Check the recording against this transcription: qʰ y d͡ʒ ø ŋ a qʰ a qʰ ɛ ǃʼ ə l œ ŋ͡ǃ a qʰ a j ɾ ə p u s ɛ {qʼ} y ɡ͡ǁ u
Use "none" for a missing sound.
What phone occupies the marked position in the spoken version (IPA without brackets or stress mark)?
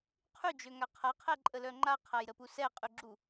qʼ